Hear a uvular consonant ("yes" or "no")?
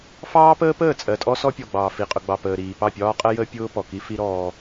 yes